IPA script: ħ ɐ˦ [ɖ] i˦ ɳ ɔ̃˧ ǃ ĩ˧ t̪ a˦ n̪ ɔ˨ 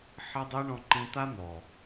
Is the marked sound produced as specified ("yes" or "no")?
no